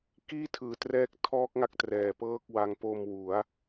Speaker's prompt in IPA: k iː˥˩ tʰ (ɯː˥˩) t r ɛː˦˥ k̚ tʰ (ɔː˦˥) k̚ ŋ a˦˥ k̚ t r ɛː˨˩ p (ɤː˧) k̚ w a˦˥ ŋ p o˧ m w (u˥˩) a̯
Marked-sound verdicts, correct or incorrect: incorrect: ɯː˨˩, correct, incorrect: ɤː˥˩, incorrect: u˩˦

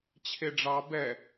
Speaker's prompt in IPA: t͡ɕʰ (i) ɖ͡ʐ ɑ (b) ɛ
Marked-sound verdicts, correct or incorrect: incorrect: e, correct

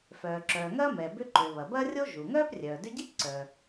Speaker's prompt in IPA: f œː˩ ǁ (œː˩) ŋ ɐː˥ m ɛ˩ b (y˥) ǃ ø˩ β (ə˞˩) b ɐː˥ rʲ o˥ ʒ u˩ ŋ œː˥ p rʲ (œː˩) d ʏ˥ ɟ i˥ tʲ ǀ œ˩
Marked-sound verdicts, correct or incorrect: correct, incorrect: ʏ˥, incorrect: ɐ˩, correct

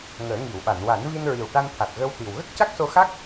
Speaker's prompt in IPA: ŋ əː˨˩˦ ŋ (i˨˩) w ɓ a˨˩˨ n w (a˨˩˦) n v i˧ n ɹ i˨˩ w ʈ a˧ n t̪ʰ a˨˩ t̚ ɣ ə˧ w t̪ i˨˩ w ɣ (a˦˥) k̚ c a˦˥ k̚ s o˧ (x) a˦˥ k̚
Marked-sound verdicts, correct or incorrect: incorrect: i˨˩˨, correct, incorrect: ə˦˥, correct

